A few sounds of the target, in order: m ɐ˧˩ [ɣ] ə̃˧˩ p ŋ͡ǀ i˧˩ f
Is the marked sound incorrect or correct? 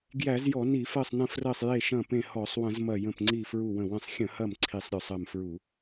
incorrect